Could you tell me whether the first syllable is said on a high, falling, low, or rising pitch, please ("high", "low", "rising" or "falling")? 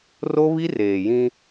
high